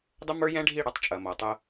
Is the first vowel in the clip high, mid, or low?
mid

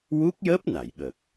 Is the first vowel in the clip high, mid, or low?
high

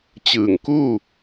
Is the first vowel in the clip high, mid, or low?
high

